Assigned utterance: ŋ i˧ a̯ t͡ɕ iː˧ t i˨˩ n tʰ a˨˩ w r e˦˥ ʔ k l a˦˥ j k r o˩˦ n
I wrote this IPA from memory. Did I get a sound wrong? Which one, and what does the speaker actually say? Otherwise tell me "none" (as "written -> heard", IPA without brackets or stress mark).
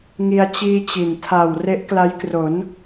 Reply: t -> t͡ɕ